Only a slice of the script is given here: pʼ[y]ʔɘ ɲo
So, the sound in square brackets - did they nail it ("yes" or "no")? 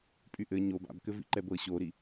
yes